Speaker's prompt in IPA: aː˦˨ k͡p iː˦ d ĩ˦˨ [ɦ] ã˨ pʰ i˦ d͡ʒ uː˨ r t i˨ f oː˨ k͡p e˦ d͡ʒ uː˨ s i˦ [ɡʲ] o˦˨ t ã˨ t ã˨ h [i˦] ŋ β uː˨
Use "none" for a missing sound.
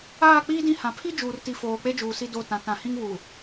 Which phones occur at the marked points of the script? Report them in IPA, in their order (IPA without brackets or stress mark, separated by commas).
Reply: h, d, ĩ˦